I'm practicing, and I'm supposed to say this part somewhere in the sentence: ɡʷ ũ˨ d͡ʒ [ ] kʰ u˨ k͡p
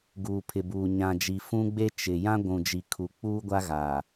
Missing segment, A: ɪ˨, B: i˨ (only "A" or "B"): B